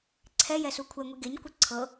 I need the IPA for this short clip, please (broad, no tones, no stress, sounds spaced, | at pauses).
ǀʰ ɛ j ɛ s u kʷʰ ɛ ŋʷ i ɡ e ɲ kʷ ɤ ǀʰ ɤ